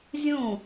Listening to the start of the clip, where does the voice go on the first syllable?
falling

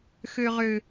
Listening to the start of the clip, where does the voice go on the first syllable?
high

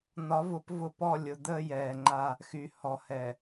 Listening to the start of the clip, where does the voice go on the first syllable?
rising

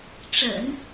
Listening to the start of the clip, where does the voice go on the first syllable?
low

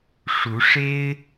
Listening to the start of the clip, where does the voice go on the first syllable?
rising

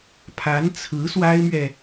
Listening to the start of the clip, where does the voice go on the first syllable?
rising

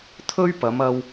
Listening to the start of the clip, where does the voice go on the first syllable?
high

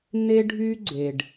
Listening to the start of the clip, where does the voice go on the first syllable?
high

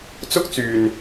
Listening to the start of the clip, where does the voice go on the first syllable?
high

